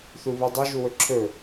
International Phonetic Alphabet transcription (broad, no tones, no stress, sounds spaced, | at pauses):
θ u β u dˤ ʉ ʒ u w ɵ ǁʰ ɵ